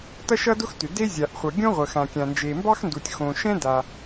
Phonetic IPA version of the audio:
tʌ˥ʃʌ˥dʊ˥xtʏ˩ de˥zʲa˩ʔχʷʌ˩ ɡʲõ˥ʁʷə˩xã˩ kʲã˩nd͡ʒe˩mbɑ˥xndu˩tʲ xõ˩ʃɛ̃˥da˩

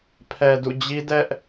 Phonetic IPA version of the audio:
pʰɛ˨dṵ˦˨d͡ʑi˦ dɛ˦ʔ

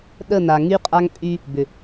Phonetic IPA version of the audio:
ɗə˦˨n̪a˨ ŋy˦qʼa˦ŋpʼy˦ | bʏ˨

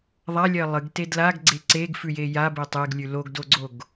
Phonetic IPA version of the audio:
ðˤalʲɜ lˠɨɡte dlaɡɡ͡ǀe ǀeɡfʉje jabe tˤeɡlʲʉ loɡdoɡ͡ǀoɡ

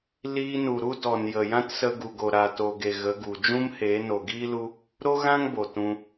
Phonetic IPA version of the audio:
liː˧nu˨ɾu˦dɔ˨n jə˨jã˦tsə˧ ɡu˨ɡo˨ɾa˨ to˨ɡe˨ ɣə˨˦ɡu˨ d͡ʒũ˦mheː˨˦ no˨ɡiː˦lu˧ | ɾo˦ɣã˦ŋ bo˨tũ˧

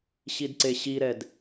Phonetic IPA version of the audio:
ɕidǀeɕiɾɛd

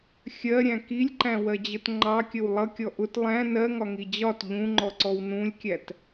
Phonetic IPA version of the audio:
xʲɜɾʲæ̃ kilʲǃæ̃wɜd͡ʑət ŋ͡ǃɑkʲəw lˠʌkʲɔ ʔʊt lˠæ̃ nɜŋɒŋi d͡ʑɒt ʎũŋ͡ǃɔǀɔw nũlʲkʲæt

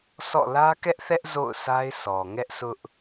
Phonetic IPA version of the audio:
sɔ̰˦˨ lä˦kɛ˦ʔθɛ˦ʔ zo̰˦˨ʊ̯sʰa˦ɪ̯sɔ˨ ŋɛ˦ʔsʰʊ˦ʔ

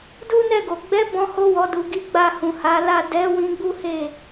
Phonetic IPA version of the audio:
du˦nɛ˦˨ɡo˨ ɡ͡bɛ˨˦ bɔ̃˧ho˧ wɔ˨du˨ɡi˨˦ ɡ͡ba˧ hũ˨ ha˨˦la˦˨ dɛ˨˦ wĩ˧ɡ͡bu˦he˦˨

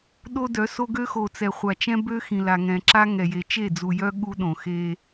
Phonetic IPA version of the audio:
ɗo˦dœ˨˦so˦ɡø˦ xo˨t͡sɛ˨χʷa˨t͡ʃɛ̃˦ bø˦ xĩ˨la˨ŋɛ̃˨ǁa˦ ŋɛ˨je˨ t͡ʃe˦˨d͡zu˨jœ˦ ɠu˦ɗõ˨xe˦

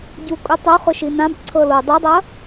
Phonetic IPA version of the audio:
ɟukʼutˤoχʊ ʃinãbǀʰɤ lo dˤudˤɐ

